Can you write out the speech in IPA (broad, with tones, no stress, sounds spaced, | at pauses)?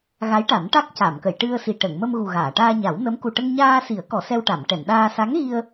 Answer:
ɣ a˧˥ j ʈ a˨˩˦ n ʈ a˦˥ k̚ c a˨˩˨ m k ə˨˩˨ j ʈ ɨ˧ ə̯ s i˨˩ ʈ ə˨˩˨ ŋ m ə˧ m ɣ u˨˩ ɣ aː˨˩˨ ʈ aː˧ ɲ a˨˩˦ w n ə˧˥ m k u˨˩ ʈ ə˧ ŋ ɲ aː˧ s i˨˩˦ ə̯ k ɔ˨˩˦ s ɛ˧ w ʈ a˨˩˨ m ʈ ɛ˨˩˨ n ɗ aː˧ s a˧˥ ŋ ɣ i˧ ə̯